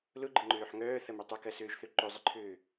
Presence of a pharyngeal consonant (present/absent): present